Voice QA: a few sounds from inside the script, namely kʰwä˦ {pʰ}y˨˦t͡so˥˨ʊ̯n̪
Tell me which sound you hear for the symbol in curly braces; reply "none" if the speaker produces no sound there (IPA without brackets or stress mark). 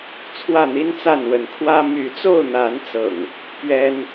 m